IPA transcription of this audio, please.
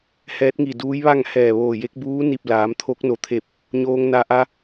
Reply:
h ɛː˧˥ t̚ ŋ i˧˩ d uː˧˥ j ʋ a˥˨ ŋ h ɛː˧˩ ʋ oː˧˩ j e˧˥ k̚ b uː˧˥ n i˧˩ p̚ l aː˩˧ m t̪ʰ o˧˥ k̚ n o˧˩ t̪ʰ e˧˩ p̚ | ɲ oː˧ ŋ n a˧ ʔ a˧

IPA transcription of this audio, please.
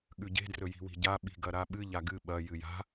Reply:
ɠ ʉ ɟ e̤ d r ɵ j i̤ w i̤ ɟ a ɓ i̤ ɡ ɐ ɾ a ɓ ɨ ʎ a ɡ ɨ ɓ ɐ j ɨ j a̤

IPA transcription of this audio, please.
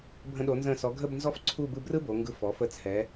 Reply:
bʱ ə̃˧ ɗ o˩˧ n z ə̃˧˩ s ɔ˩˧ ɡʱ ə˥˧ b n z ɔ˥ f ǀʰ u˥˧ b ɯ˧ b r ɯ˥ b o˩˧ ŋ ɡ ɯ˧ f ɔ˩˧ f ə˧ t͡sʰ ɛ˩˧

